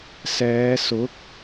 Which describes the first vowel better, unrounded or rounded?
unrounded